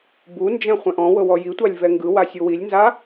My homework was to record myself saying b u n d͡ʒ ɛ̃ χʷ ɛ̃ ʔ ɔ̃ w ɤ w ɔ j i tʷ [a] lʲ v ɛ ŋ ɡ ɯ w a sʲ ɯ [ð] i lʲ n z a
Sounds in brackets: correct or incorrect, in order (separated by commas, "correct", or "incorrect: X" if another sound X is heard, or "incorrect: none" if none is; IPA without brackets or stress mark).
correct, incorrect: w